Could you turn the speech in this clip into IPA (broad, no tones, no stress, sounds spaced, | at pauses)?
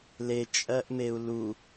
l e t͡ʃʼ ɜ ʔ m e u̯ l u